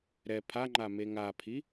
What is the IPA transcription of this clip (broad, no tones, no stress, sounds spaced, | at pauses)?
ɾ ɛ pʰ a ŋ͡ǃ a m e ŋ a pʰ i